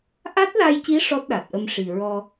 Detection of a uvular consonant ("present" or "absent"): absent